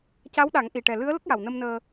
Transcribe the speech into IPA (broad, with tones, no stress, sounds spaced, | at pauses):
c a˧˥ w ɗ a˨˩˦ ŋ ʔ i˨˩ ʈ ɛ˨˩ l ɨ˧˥ ə̯ l ə˦˥ k̚ j a˨˩ w n ə˧ m n əː˧